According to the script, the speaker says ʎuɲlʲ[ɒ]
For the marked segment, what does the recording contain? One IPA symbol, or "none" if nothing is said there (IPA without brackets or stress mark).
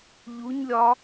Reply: ɒ